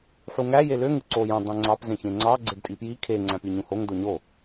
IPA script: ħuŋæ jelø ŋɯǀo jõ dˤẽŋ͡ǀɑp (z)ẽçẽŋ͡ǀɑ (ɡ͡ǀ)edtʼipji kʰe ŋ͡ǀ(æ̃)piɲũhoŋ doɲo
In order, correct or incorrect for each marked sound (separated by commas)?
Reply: correct, correct, correct